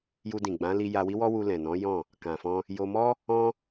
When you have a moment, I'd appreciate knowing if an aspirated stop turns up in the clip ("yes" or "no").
no